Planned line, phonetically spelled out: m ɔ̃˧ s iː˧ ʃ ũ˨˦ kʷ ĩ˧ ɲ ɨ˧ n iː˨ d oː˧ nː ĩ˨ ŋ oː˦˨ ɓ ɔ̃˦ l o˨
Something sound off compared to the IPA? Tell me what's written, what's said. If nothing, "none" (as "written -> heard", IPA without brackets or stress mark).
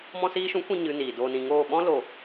nː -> n